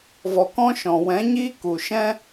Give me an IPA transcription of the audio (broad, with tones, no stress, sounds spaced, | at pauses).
v ɔ˨ k ɔ̃˦ ʃ ɔ̃˨ w ɛ̃˨˦ ɲ iː˦ k u˨ ʃ ɛ̃˦